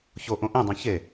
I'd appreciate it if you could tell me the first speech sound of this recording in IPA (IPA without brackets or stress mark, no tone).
ç